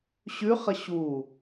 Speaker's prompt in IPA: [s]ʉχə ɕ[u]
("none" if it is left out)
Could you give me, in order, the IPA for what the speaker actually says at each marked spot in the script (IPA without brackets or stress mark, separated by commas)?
ɕ, u